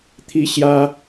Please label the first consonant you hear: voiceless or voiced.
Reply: voiceless